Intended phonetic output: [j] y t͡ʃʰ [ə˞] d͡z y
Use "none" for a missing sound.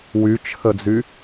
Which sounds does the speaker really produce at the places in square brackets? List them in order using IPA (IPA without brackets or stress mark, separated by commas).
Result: w, ə